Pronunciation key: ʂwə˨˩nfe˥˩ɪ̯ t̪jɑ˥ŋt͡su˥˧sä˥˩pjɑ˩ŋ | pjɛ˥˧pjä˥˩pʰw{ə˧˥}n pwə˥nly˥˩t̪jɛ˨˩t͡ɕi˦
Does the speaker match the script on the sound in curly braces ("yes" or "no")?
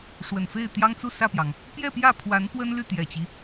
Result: no